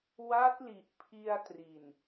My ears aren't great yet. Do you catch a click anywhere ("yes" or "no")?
no